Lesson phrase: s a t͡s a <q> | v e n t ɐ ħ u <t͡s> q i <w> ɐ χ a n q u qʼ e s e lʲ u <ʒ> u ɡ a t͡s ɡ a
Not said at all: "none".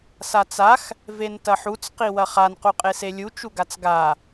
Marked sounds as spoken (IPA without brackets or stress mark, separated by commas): x, t͡s, w, t͡ʃ